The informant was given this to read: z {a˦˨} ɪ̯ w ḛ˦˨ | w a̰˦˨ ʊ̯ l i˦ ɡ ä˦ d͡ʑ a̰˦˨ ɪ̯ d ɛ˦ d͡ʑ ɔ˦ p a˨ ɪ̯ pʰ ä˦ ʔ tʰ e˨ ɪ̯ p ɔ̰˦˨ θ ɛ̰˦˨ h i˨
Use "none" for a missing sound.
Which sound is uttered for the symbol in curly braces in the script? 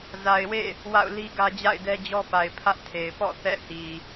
a˨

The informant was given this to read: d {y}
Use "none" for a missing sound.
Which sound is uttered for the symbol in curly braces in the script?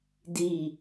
i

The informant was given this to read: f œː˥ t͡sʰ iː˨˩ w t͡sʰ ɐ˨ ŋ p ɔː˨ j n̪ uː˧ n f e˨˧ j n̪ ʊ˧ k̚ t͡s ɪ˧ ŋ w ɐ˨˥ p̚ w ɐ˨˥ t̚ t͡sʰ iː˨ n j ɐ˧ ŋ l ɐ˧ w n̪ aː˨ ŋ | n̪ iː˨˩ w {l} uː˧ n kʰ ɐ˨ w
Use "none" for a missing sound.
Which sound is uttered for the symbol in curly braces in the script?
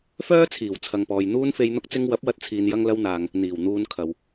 n̪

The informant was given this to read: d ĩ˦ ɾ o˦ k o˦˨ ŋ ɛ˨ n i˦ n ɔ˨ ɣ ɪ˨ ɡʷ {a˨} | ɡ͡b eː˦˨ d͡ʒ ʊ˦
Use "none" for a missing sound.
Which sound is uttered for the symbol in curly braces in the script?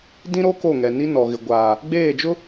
aː˨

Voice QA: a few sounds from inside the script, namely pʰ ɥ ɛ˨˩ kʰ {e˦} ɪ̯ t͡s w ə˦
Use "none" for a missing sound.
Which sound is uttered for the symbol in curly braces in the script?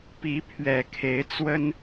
e˨˦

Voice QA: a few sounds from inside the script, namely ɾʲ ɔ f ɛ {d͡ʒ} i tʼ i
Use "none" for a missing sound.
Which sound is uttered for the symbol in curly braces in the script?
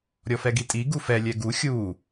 ɡ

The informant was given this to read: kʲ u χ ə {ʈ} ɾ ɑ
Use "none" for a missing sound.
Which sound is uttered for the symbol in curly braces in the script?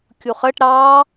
ʈ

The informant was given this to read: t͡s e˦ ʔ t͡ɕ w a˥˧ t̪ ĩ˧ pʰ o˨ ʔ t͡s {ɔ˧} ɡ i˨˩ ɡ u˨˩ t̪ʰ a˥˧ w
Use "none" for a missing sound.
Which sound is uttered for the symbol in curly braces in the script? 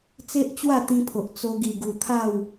o˧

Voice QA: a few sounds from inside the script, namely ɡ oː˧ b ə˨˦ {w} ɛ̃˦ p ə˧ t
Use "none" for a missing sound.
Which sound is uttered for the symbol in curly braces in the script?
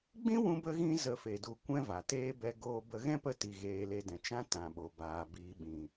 ɣ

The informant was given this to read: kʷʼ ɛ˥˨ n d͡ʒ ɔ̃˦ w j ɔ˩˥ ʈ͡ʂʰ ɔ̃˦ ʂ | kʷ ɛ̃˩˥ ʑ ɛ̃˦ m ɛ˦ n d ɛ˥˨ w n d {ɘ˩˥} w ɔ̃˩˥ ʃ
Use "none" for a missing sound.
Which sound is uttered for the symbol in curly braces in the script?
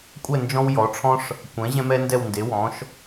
e˩˥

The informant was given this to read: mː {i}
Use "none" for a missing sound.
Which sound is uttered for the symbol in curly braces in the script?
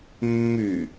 y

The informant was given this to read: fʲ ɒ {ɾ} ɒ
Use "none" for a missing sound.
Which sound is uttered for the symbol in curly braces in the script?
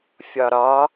ɾ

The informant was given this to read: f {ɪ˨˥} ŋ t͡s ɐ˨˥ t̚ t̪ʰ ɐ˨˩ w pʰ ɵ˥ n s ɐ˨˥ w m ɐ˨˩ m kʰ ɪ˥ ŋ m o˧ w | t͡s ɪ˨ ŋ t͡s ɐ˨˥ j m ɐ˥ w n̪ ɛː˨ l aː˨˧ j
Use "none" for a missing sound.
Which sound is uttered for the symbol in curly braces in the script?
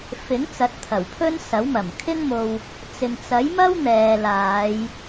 ɪ˨˥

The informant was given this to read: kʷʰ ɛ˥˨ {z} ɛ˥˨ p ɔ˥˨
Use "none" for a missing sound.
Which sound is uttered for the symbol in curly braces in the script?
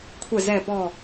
z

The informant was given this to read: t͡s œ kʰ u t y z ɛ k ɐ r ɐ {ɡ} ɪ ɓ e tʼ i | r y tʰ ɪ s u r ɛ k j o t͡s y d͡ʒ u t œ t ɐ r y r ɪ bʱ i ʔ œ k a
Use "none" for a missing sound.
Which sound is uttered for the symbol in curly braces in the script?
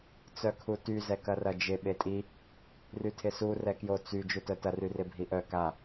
d͡ʒ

